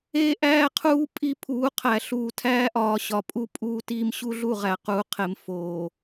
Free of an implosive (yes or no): yes